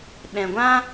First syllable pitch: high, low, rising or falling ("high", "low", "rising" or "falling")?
low